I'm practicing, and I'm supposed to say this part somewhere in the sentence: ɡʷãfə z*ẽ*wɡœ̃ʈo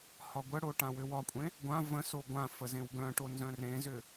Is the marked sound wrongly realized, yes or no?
no